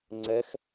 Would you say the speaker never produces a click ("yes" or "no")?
no